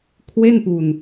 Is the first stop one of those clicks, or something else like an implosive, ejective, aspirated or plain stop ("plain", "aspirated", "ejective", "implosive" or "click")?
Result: aspirated